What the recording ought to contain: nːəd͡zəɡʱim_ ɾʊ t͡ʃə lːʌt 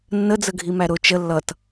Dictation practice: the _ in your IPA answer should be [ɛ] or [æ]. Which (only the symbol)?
æ